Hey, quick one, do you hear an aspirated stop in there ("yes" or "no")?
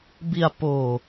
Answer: no